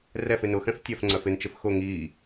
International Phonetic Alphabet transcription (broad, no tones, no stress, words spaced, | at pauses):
rɛfɪ nʊxɛ̃f tʲœfŋ͡ǀœf ɪnt͡ʃɪf xʊ ŋiː